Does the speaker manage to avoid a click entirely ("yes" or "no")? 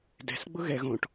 yes